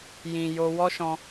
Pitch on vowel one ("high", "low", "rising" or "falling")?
low